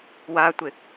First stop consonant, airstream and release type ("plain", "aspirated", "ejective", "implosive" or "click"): plain